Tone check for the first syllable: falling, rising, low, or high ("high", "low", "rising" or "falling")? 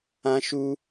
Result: high